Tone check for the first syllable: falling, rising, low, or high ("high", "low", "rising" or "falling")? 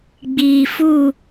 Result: low